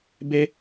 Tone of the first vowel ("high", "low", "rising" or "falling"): high